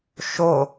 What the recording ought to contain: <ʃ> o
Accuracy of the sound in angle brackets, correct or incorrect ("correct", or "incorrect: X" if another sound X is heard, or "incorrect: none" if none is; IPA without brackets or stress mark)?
correct